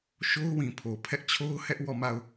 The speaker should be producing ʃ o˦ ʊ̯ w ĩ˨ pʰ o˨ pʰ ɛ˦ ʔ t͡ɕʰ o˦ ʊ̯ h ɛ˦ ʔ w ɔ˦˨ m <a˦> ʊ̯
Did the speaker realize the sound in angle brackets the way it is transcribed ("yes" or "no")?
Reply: no